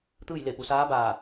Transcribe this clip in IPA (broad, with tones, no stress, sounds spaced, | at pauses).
t̪ ɯː˥˨ j l e˧˩ p u˩ s aː˧˥ b aː˧˩